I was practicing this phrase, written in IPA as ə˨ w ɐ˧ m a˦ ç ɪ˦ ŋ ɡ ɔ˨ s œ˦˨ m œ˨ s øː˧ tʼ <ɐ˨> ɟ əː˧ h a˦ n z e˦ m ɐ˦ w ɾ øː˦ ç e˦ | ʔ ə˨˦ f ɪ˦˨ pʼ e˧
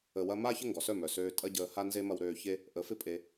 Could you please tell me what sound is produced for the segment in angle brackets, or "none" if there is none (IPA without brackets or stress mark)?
ɐ˦